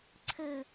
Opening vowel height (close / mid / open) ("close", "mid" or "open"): mid